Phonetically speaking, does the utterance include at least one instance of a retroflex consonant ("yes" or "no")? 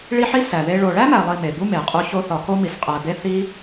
yes